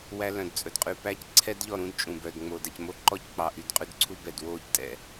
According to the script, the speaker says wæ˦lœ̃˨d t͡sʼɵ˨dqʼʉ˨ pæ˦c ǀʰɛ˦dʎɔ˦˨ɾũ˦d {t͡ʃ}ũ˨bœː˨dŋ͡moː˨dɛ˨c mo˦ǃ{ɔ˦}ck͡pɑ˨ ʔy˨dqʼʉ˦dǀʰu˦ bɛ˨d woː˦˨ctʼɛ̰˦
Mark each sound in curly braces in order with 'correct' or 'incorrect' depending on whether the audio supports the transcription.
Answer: incorrect: t͡ʃʼ, correct

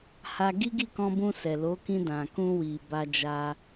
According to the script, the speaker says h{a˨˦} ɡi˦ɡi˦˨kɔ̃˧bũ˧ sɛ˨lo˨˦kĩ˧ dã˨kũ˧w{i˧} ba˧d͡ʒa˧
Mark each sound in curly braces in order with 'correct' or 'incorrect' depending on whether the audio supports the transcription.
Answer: incorrect: a˧, incorrect: i˨

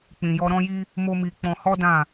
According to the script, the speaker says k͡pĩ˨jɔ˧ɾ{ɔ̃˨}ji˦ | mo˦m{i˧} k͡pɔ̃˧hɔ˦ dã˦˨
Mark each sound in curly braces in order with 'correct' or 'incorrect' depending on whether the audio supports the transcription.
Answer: incorrect: ɔ̃˦, correct

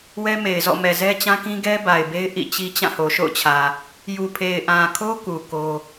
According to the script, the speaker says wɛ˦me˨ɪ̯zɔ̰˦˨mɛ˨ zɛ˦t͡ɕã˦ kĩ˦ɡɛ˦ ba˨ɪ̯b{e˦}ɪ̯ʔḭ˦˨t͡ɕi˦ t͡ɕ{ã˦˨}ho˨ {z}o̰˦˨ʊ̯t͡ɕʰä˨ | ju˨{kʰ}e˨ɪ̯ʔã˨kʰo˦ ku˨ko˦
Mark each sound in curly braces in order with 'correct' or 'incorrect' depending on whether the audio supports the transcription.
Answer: correct, correct, incorrect: ʃ, incorrect: pʰ

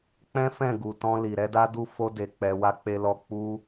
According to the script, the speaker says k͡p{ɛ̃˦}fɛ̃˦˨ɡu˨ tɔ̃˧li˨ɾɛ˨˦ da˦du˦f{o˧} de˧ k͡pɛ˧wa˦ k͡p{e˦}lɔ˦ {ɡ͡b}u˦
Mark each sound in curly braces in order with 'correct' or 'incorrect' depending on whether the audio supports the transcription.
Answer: correct, incorrect: o˦, correct, incorrect: k͡p

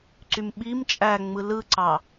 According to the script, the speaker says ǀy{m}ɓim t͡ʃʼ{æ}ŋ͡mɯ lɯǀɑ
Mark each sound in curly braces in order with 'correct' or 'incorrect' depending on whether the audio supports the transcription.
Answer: correct, correct

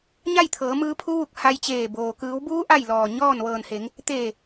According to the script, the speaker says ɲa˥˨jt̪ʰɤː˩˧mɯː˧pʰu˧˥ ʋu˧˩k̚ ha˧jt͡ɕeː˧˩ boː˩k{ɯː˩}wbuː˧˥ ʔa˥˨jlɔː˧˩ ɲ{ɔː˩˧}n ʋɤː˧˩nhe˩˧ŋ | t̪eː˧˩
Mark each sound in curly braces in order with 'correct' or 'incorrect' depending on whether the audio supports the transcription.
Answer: incorrect: ɯː˩˧, incorrect: ɔː˥˨

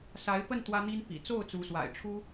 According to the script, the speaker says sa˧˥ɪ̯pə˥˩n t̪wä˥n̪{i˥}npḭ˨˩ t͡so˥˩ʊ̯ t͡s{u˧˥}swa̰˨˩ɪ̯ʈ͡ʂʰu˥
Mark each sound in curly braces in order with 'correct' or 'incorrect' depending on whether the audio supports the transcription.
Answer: correct, correct

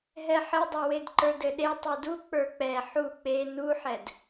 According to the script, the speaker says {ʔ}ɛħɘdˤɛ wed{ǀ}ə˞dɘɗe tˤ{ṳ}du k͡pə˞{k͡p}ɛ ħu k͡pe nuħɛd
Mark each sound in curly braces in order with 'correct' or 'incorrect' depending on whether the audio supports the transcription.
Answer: incorrect: ɦ, incorrect: ǃ, incorrect: u, correct

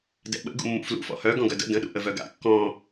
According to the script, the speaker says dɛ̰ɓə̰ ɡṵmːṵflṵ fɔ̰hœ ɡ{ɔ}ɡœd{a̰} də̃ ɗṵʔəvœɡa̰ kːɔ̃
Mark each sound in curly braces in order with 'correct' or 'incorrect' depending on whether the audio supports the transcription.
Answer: incorrect: ɔ̃, incorrect: ə̰

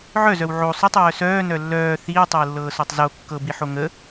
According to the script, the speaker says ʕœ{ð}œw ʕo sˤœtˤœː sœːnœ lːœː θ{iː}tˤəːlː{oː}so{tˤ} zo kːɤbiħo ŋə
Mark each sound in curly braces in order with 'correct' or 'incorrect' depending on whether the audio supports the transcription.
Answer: incorrect: z, correct, incorrect: ɤː, correct

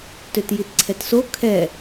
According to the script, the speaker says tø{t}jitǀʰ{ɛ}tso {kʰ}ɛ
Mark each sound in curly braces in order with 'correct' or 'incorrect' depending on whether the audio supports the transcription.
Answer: correct, correct, correct

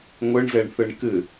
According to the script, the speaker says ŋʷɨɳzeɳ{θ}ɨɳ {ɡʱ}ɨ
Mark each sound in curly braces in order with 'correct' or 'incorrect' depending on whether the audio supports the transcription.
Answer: correct, incorrect: k

